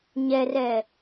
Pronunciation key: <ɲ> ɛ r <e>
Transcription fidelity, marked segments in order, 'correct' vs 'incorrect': correct, incorrect

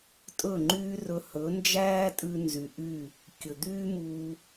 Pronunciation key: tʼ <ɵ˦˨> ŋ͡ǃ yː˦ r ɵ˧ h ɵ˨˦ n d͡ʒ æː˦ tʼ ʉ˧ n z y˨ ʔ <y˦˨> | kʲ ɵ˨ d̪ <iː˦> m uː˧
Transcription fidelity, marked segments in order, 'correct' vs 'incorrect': correct, correct, incorrect

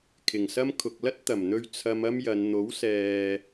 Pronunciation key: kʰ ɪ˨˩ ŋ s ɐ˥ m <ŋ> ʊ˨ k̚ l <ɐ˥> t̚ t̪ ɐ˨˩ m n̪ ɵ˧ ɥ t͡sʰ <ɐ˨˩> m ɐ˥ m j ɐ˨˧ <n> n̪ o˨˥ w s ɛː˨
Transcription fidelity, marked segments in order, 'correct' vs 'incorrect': incorrect, correct, incorrect, correct

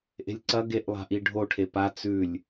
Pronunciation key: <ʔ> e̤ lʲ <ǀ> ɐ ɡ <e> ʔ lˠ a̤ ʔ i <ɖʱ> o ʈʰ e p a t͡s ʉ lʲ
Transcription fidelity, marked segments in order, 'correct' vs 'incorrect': correct, correct, correct, correct

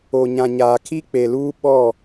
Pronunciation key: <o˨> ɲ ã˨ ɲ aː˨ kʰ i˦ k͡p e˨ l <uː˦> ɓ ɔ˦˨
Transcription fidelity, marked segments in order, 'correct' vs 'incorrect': correct, correct

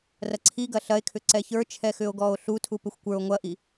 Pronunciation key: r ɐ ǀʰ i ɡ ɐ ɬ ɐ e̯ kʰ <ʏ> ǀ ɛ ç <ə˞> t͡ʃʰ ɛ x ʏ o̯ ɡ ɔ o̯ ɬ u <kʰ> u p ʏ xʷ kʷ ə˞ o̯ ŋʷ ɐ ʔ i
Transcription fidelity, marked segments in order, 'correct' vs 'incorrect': correct, correct, incorrect

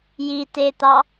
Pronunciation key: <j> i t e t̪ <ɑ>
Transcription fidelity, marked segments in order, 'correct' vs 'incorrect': correct, correct

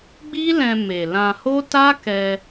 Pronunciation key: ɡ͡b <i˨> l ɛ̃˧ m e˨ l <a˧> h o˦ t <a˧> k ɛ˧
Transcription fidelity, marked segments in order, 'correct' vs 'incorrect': incorrect, incorrect, incorrect

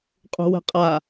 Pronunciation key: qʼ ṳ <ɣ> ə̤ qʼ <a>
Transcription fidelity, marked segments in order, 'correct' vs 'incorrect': incorrect, correct

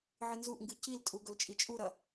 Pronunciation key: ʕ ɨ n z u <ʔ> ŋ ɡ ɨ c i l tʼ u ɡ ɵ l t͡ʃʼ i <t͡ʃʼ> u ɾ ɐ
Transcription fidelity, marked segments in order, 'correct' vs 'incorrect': correct, correct

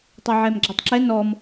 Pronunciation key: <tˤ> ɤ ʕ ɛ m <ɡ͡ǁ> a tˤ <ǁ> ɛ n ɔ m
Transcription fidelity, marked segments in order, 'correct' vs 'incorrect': correct, correct, correct

